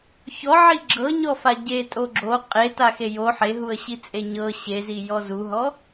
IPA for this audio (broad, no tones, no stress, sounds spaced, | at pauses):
ç ɔ ʕ i ɡ͡ǁ ɤ ɲ ɔ f a ɟ e tʼ o ɡ͡ǁ o qʼ e t a x e j o ħ e ɦ u ə̯ ɕ i t͡sʼ e ɲ ɤ ɕ e z i j ɔ z u ɦ ɔ